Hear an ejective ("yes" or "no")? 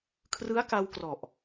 no